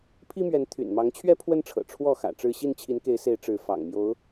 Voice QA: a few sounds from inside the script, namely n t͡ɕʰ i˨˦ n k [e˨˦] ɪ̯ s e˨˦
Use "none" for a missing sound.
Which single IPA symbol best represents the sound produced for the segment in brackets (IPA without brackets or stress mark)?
e˨˦